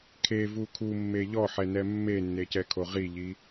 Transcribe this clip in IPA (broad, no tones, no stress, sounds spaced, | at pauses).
kʰ e v u kʰ u mː e ʎ ɔ ħ ɛ n ɛ mː e nː e c ɛ kʰ o ʁ i ʎ i